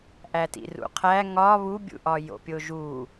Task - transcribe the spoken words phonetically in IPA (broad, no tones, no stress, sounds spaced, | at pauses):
ʔ æ t ḭ r ṵ qʰ æ ŋ ɒ β u bʲ ṵ ʔ ɒ j o̰ pʲ o ʒ u